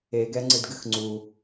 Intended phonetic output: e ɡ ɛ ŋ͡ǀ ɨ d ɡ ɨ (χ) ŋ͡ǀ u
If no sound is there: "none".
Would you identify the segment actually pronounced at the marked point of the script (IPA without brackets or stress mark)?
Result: x